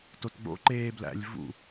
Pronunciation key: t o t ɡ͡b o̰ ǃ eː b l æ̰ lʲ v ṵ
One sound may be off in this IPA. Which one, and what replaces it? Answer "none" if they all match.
none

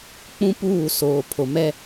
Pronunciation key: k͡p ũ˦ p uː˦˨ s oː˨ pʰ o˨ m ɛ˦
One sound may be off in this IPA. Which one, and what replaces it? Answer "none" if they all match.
none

